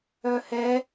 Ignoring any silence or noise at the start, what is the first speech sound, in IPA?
œ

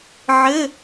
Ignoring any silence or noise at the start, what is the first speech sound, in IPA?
ʕ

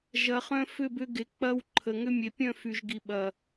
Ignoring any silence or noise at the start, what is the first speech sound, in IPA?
ʒ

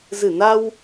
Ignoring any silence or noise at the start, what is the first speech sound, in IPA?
z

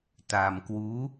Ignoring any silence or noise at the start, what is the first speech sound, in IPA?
t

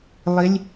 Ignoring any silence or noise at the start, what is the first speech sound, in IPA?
lˠ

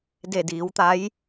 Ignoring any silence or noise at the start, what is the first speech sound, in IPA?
d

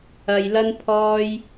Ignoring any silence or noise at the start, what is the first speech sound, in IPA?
ɐ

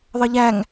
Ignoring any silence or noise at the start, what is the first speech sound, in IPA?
ðˤ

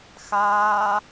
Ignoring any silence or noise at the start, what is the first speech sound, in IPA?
x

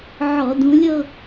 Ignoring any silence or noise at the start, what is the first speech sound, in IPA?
ʕ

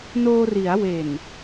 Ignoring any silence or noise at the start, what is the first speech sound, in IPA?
n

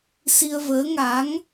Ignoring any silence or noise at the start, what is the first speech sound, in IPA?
s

